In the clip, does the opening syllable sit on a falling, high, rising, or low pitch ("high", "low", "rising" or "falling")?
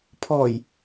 low